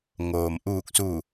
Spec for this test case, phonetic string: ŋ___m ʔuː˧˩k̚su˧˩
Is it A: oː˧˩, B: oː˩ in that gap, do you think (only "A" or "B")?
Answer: B